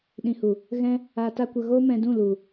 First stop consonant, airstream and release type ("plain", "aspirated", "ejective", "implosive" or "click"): implosive